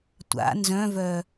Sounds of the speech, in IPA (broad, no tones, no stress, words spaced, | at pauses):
tʷa̰ nzœ̃vœ